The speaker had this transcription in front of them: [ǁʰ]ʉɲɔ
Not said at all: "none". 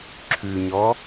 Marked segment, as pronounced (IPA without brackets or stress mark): ǁʰ